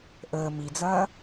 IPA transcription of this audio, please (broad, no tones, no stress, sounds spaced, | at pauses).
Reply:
ʔ əː m i d͡z ɐː